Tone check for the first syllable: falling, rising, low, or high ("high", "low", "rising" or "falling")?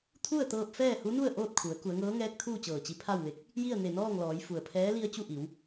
falling